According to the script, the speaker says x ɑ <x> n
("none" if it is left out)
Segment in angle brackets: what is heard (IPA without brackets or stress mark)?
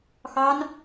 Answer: none